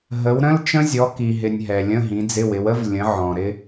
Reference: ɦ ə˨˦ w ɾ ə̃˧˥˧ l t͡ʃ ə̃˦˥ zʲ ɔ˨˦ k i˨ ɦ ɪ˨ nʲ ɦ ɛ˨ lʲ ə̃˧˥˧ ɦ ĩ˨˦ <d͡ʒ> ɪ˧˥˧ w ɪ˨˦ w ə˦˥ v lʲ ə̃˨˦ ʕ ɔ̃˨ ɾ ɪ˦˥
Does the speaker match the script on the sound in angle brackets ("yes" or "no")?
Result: no